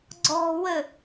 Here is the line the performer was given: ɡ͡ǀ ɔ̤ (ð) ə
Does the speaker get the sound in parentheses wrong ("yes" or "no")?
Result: yes